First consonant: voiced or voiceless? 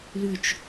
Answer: voiced